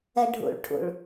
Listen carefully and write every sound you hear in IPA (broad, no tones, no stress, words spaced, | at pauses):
ɛɖʱṵɭ ʈʰṵɭ